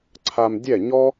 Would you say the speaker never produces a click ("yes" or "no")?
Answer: no